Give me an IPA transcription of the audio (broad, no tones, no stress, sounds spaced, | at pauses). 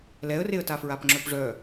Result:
l ɛ ə̯ r e ə̯ t a f ɹ a p ŋ͡ǁ œ p ʐ œ